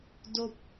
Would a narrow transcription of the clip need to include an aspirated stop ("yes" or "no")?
no